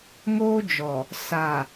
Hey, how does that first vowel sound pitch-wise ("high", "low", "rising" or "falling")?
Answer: high